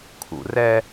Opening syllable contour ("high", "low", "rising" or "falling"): low